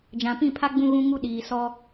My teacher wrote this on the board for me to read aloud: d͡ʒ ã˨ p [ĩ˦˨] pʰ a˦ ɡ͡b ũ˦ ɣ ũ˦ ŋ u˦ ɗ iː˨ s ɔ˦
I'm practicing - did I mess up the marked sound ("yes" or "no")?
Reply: no